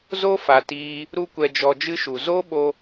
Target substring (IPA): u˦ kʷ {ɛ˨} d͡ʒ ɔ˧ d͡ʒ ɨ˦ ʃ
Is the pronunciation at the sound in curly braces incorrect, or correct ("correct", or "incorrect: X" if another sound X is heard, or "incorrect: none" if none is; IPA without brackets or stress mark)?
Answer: incorrect: ɛ˧